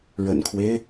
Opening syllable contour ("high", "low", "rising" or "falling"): low